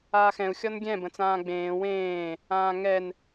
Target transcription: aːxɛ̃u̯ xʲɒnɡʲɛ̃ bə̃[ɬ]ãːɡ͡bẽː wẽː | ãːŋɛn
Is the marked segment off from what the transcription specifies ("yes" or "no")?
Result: yes